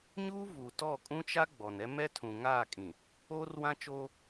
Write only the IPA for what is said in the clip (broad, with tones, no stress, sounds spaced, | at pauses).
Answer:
ɲ uː˦ v u˨ t ɔ˦˨ kʼ ũ˦ t͡ʃ a˦ ɡ͡b ɔ˨ n ɛ˦ m ɛ˦ tʰ ũ˨ ŋ aː˦˨ kʼ ĩ˨ | oː˦ r w ã˦ t͡ʃ oː˦